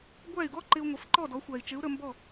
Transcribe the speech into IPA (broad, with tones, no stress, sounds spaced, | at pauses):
ɡʷ æ˥˩ y̯ ɡ ɔ˥ ǃ ɪ˧ u̯ ŋʷ ɪ˩˥ f ǃ ɔ˥˩ d ɔ˩˥ xʷ æ˩ i̯ t͡ʃ ɪ˩˥ u̯ ɾ ə˧ m b ɔ˥˩